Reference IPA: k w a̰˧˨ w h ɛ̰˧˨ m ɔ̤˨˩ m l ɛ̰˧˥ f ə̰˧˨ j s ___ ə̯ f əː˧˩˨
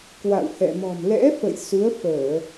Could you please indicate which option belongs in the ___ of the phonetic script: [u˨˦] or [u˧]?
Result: u˨˦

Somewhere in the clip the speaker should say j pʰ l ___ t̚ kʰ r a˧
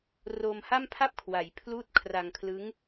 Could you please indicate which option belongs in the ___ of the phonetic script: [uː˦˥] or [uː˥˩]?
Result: uː˦˥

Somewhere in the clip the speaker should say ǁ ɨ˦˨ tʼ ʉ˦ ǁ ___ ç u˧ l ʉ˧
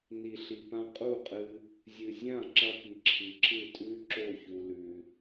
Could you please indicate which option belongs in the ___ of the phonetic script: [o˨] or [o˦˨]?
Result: o˦˨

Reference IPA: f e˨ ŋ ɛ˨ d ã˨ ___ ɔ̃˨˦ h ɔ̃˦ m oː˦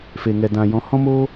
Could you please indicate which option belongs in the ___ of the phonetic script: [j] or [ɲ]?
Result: j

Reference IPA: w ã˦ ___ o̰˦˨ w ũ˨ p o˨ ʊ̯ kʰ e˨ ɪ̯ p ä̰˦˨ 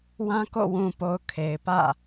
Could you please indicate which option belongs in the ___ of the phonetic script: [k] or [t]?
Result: k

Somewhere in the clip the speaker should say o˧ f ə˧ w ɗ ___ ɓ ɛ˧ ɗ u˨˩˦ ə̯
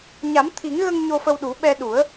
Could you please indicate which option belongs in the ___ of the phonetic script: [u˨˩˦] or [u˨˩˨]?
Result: u˨˩˦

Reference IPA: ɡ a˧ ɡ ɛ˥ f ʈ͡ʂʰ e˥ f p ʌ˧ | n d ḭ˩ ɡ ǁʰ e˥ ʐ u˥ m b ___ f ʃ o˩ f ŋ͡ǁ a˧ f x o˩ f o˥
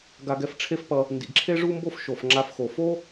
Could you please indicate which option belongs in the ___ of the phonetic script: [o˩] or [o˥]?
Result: o˥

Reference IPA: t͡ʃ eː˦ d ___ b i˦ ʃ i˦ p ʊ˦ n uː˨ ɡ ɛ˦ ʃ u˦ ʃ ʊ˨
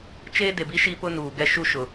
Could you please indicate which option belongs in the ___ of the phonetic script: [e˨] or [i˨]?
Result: e˨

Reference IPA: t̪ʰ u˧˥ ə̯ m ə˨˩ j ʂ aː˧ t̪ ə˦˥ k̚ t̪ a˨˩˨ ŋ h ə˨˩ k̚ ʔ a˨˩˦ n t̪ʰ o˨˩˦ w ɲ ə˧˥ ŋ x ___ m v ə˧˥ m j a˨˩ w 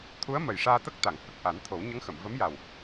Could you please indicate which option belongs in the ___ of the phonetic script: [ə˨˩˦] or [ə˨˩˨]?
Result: ə˨˩˨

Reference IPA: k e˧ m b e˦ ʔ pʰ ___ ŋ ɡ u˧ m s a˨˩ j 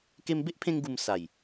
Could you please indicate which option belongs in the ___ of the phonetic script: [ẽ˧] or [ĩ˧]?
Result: ẽ˧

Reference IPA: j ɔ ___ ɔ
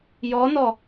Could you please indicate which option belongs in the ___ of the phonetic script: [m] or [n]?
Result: n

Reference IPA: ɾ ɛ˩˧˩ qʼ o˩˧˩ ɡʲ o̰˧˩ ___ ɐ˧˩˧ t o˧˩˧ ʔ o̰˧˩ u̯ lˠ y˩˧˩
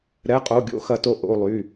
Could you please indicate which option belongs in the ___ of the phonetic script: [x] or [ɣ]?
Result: x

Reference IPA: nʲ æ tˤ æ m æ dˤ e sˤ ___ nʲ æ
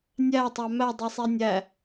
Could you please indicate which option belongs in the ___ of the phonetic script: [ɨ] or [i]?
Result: i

